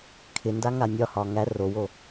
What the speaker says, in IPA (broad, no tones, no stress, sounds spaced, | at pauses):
kʰ ɪ n d a ŋ a nʲ ɒ h ɒ ŋ æ r o w o